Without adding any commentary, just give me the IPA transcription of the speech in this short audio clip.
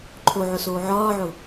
ǃʰ o ʕ ʊ s oː ʕ ɒː ʕ ʊ

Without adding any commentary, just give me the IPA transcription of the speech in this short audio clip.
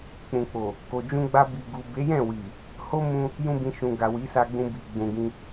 k͡p ũ˨ k͡p o˨ | k o˧ d͡ʒ ũ˧ ɡ͡b a˧ b i˨ ɡ u˨ b e˨˦ j ɛ̃˦˨ w i˨ | h o˦ m ũ˦ | j ũ˦ b ĩ˧ ʃ ũ˨ ɡ a˨ w i˨˦ s a˧ ɡ͡b ũ˧ b i˨ ɡ͡b ũ˨ ɡ ĩ˧

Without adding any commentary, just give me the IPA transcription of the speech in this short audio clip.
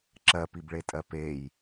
ǁ ɜ p i b ɭ e tʼ ɜ p e j

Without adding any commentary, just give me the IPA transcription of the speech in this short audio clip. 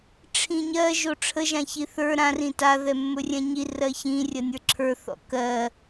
ʈ͡ʂʰ ĩ ɲ ɜ ʒ o ʈ͡ʂʰ ə ʒ ã ç i θ ə˞ ɾ ã r ĩ t a ð ɛ mː ɵ rʲ ɛ̃ ɲ i r ɜ ç ĩ rʲ ɜ nʲ ə˞ ǁʰ ə˞ θ ɔ̰ k ɜ

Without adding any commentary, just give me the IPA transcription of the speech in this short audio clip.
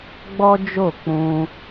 ɡ͡b ɔ˦ d͡ʒ o˦˨ k͡p ũ˧

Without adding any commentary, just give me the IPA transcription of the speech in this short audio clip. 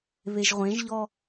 β e ʒ ʁʷ ẽ ʒ ʎ ɔ

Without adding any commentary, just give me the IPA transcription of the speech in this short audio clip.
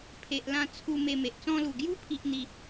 pʰ e˨ ʔ l ã˧ t͡sʰ u˧ m e˧ m e˨ ʔ t͡s ɔ̃˧ l u˨˩ ɡ j u˦ pʰ i˦ ʔ n̪ i˦

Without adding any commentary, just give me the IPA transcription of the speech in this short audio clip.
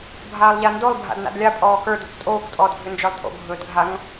bʱ aː lˠ ʎ a n d o lˠ bʱ a̰ d n a̰ d lʲ a pʼ ɔː k ə˞ d ɵ kʷ tʼ oː kʷ tʼ ɔː d ɡʱ ʏ n d͡ʒ ə˞ lˠ tʼ o̰ ɡʱ ɵː d ɡʱ a ŋ

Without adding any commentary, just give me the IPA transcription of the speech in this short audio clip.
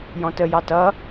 j ɔ̃ t ə j ɑ t ʌ

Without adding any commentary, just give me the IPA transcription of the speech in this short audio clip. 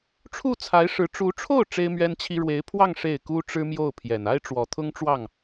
ʈ͡ʂʰ u˥˩ t͡sʰ a˧˥ ɪ̯ ʂ ɻ̩˧˥ ʈ͡ʂ u˧˥ ʈ͡ʂʰ o˥˩ ʊ̯ ʈ͡ʂ e˥ ɪ̯ m ɥ ɛ˥ n t͡ɕʰ i˥ ɻ w e˧˥ ɪ̯ pʰ w ɑ˥˧ ŋ ʂ e˥˩ ɪ̯ k u˥ ʈ͡ʂ ɻ̩˥ m j o˥˩ ʊ̯ pʰ j ɛ˨˩ n a˥ ɪ̯ ʈ͡ʂ w ɔ˨˩ t̪ʰ ʊ˥ ŋ ʈ͡ʂ w ɑ˥˩ ŋ

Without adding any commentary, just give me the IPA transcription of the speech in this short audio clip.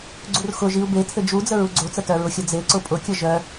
ɡ͡ǀ u r x ʊ ʒ i u̯ b e tʰ ɘ d͡ʒ u d͡z ə ɹ u ɡ͡ǀ o t͡s ə t œ ɹ ʊ xʲ ə d͡z e ǀ ʊ pʼ ʊ kʲ ə ʒ œ

